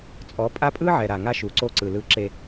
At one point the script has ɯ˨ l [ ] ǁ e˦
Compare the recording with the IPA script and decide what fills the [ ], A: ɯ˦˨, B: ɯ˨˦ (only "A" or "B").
A